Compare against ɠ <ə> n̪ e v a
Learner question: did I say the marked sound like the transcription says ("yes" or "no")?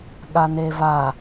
no